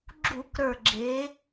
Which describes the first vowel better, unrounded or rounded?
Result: rounded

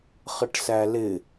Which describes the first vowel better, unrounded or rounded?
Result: unrounded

